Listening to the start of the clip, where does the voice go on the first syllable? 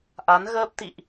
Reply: rising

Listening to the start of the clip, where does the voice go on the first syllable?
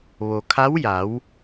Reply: low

